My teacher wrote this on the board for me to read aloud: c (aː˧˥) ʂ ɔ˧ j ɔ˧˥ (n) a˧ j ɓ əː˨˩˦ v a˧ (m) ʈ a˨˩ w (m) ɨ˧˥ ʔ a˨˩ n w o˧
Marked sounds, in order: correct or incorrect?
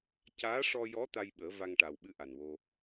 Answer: correct, incorrect: t̪, incorrect: ŋ, incorrect: ɓ

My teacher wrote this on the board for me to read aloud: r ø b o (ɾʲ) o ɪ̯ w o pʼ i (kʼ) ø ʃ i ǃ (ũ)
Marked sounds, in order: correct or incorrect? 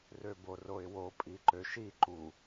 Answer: incorrect: r, incorrect: ǃ, incorrect: u

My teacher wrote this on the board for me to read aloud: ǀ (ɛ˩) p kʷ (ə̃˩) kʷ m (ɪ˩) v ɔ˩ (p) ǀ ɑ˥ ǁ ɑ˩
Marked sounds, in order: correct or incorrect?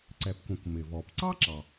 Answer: correct, correct, correct, correct

